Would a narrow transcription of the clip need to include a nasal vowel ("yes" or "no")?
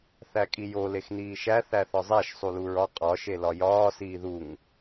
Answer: no